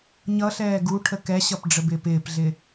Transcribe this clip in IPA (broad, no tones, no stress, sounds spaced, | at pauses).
ɲ ʌ ɬ ɛː ɡ u ʈʰ ə k ɛ ɕ ʌ p ɖ͡ʐ ə b ɪː p ɪː p ɮ ɪ